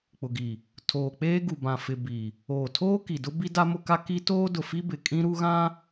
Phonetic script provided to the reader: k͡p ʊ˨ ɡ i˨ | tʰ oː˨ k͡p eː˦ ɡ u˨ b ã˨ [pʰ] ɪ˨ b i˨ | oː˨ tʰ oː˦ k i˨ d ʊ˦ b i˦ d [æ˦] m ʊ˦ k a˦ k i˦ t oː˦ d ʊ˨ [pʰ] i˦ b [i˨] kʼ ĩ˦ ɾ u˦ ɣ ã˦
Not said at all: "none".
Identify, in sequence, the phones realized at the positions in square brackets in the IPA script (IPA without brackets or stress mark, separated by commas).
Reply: f, a˦, f, ɪ˨